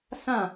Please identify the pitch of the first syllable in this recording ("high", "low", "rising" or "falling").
falling